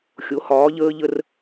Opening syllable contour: rising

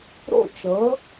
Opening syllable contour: falling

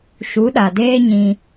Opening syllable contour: rising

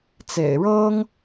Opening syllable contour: low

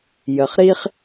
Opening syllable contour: low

